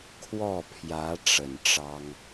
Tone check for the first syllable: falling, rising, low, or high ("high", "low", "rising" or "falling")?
falling